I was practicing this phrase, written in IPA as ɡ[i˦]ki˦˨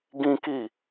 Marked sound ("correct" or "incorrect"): incorrect